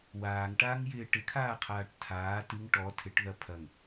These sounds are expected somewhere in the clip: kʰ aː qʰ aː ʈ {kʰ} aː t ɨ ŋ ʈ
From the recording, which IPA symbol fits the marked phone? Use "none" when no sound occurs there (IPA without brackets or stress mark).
tʰ